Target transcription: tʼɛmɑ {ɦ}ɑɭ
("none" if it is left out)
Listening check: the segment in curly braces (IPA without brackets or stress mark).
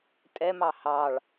h